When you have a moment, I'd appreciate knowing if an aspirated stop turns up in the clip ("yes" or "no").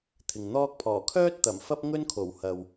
yes